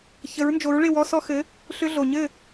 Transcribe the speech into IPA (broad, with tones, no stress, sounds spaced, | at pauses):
ç ə˩˥ ɹ n d͡ʒ o˩˥ ɹ ɭ ɪ˥˩ w ɔ˧ s ɔ˧ x ɘ˩˥ | ɬ ʏ˧ ɮ o˩ ɲ ɘ˥˩